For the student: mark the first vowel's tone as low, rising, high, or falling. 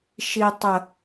low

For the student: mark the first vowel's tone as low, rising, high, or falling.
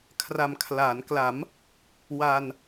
low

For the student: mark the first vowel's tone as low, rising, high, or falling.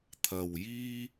low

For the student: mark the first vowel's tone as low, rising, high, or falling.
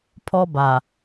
high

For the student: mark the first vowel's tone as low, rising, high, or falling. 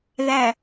low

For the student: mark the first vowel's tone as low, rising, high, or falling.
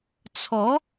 rising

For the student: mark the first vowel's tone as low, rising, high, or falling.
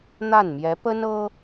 falling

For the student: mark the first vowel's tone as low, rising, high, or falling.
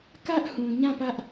high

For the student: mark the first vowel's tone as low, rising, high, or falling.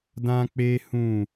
high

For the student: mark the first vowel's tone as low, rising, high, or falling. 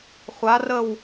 rising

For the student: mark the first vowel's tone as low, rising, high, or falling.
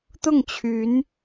falling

